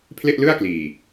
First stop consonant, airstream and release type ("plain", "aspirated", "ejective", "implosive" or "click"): aspirated